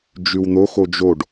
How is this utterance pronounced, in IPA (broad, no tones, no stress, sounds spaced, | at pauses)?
d͡ʒ ʉ w n̪ o x o d͡ʒ o ɖ